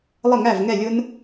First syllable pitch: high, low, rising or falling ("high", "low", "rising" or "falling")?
falling